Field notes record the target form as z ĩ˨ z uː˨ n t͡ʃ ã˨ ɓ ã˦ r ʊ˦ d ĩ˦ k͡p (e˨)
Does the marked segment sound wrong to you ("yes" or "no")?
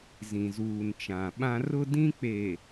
no